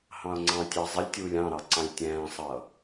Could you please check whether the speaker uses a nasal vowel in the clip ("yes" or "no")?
yes